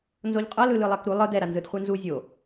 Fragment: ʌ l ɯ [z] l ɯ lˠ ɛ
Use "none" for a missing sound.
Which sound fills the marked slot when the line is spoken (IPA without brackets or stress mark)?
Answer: none